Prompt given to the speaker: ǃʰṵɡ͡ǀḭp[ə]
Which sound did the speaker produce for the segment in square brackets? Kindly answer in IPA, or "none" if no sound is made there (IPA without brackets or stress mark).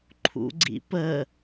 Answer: ə